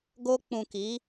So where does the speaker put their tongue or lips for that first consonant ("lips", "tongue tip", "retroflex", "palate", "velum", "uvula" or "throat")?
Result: velum